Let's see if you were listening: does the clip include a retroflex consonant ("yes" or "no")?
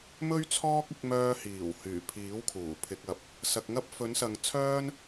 no